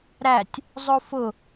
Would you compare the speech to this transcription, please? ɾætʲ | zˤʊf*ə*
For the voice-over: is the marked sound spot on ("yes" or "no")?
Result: no